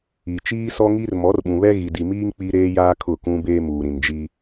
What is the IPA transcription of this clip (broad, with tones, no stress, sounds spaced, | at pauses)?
i˨ t͡ʃ iː˦ s ɔ˦ ŋ i˦ r m ɔ˨˦ r ɓ ũ˨ β ɛ˦ ɣ i˨ d i˨ m iː˦ ŋ k͡p i˦ ɾ eː˦ j aː˦ kʰ ʊ˦˨ k ũ˦ b eː˦ m uː˨ ɾ ĩ˨ n d͡ʒ i˦